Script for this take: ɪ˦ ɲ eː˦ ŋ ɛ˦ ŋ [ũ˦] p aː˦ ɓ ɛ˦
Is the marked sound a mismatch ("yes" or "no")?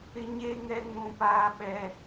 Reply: no